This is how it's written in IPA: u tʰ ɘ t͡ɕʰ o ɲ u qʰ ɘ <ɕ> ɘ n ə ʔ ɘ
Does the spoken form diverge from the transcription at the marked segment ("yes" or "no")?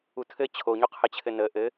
yes